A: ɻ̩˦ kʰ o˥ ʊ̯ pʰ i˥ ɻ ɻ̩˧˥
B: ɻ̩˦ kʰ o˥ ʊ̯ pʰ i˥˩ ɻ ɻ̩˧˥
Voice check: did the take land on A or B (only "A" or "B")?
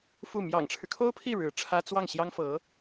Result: B